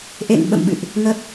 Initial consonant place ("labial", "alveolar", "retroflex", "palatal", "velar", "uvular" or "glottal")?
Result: glottal